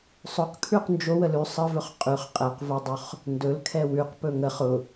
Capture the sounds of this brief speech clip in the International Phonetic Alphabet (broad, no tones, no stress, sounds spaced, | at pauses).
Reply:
sˤ ʊ q kʰ ʉ q n d͡ʒ o w ə l ʉ sˤ ə v ɵ χ qʼ ʉ χ qʼ ɛ q v o dˤ ɵ χ | n d ɵ l kʰ ɛ w ʉ q p ɵ ŋ ə χ ʊ